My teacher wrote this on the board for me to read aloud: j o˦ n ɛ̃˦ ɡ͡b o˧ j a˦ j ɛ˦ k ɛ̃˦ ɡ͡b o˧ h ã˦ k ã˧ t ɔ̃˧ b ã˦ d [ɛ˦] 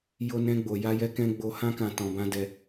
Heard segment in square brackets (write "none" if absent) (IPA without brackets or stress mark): ɛ˧